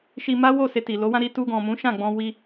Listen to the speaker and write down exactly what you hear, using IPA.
ʃ i˧ m a˦ w o˦˨ s e˧ t i˨ l o˨˦ w ã˦ ɾ i˧ t u˧ ɡ ɔ̃˨ m ũ˨˦ ʃ ã˦˨ ɡ͡b ɔ̃˧ w i˧

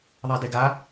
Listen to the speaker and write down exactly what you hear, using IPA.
ðˤ a d e ɡ a

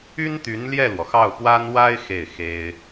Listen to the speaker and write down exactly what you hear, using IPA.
y˥ n t̪ y˧˥ n l j ɛ˥˩ l w ɔ˩ x ɑ˥˩ ʊ̯ p w a˥ n w a˥ ɪ̯ x e˥˩ ɪ̯ x e˥ ɪ̯

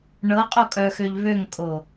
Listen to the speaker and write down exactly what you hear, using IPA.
ɳ ɤ qʼ o kʼ œ x ø ʎ β ø ŋ kʼ o

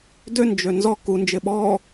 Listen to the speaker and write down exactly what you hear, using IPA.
d ø n d͡ʒ ø n z ɔ k u n d͡ʒ ɪ ɓ ɔ

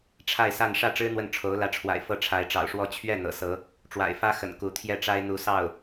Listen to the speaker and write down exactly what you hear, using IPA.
ʈ͡ʂʰ a˥˧ ɪ̯ s a˥˧ n ʂ ä˥˩ ʈ͡ʂ ɻ̩˥ n̪ w ə˥˩ n ʈ͡ʂʰ o˧˥ ʊ̯ l ä˧˥ ʈ͡ʂʰ w a̰˨˩ ɪ̯ f ɤ˥˩ ʈ͡ʂʰ a˧˥ ɪ̯ ʈ͡ʂ ɑ̰˨˩ ʊ̯ ʂ w ɔ˥˧ t͡ɕʰ ɥ ɛ˥˩ n̪ ɤ̰˨˩ s ɤ˧˥ | ʈ͡ʂ w a̰˨˩ ɪ̯ f ä˥ x ə̰˨˩ n k u˧˥ t̪ʰ j ɛ˥˩ ʈ͡ʂ a˥ ɪ̯ n̪ u˧˥ s ɑ˥˩ ʊ̯

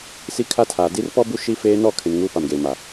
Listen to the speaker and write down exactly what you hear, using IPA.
s i˦ kʰ a˦ tʰ aː˨ d i˦ r p ɔ˦ b u˦ ʃ i˦ f eː˦ n ɔ˦˨ kʰ ɪ˨ n ŋ uː˦ p a˨ m ɡ eː˨ m a˨

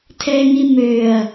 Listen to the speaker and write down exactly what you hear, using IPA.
tʰ ɛ ŋ i m ø ɐ̯

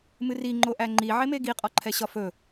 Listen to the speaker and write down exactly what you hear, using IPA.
m ɨ r i ŋ͡ǃ o ʔ æ ŋ͡ǃ i ʕ e m e ɡ i qʼ ɔ ǃʰ ɛ ɕ ɒ f ɵ

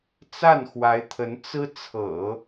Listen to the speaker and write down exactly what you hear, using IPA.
t͡s a˥˩ n x w a˧˥ ɪ̯ t̪ʰ ə˧˥ n t͡s ɹ̩˥ t͡sʰ ɤ̰˨˩˦

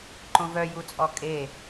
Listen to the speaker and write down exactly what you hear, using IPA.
ǃ õ v œ j u t͡sʼ ɔ kʼ e

